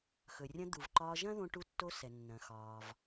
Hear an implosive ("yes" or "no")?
no